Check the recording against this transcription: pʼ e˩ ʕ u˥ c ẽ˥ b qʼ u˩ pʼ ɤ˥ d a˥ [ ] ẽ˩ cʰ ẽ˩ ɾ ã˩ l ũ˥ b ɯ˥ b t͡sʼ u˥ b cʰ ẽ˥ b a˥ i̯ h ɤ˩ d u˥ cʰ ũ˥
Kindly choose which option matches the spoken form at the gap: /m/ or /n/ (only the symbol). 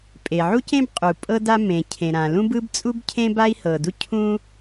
m